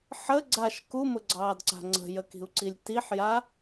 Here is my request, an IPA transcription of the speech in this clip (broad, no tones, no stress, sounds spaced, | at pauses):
ħ ə ɡ͡ǀ a ʃ k u m ʊ ɡ͡ǀ ɑː d ǀ a̤ ŋ͡ǀ ə̤ j ə k i̤ u̯ ǀ i lʲ t i ħ j a